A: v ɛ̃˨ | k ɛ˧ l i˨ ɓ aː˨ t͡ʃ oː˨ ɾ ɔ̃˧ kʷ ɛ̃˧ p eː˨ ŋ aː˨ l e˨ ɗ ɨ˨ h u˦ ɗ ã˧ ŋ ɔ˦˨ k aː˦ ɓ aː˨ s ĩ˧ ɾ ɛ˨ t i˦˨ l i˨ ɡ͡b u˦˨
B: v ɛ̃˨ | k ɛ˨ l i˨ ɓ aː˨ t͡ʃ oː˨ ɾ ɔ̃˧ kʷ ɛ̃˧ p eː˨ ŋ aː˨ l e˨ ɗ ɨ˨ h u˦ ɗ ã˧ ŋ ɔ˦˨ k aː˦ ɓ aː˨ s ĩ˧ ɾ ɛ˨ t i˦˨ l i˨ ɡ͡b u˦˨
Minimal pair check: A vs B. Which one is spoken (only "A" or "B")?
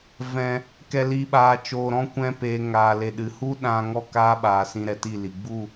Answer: B